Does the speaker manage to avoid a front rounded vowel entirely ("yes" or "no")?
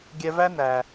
yes